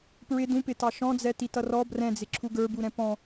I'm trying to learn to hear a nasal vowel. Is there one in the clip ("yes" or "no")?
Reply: yes